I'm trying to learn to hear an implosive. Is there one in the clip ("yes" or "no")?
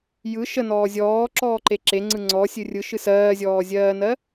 no